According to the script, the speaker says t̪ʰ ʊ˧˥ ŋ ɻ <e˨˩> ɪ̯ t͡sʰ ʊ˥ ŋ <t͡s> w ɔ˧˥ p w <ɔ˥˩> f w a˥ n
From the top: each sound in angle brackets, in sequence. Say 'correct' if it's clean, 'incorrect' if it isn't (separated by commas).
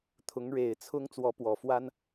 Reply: correct, correct, incorrect